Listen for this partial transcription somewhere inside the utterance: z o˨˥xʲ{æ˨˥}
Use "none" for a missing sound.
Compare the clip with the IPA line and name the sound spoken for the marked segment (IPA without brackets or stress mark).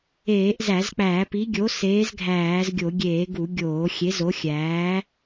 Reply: æː˨˥